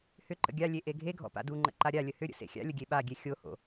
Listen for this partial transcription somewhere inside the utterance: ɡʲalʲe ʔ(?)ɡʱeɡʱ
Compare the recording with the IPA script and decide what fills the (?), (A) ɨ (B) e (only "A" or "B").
B